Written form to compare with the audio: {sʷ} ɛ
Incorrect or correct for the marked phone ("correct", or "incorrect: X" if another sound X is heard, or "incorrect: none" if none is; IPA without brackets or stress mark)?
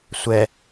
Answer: correct